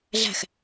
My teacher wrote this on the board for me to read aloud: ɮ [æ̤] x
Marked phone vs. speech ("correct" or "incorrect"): correct